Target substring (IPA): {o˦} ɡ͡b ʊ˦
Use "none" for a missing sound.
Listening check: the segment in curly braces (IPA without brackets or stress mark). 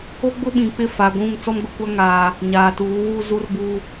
o˦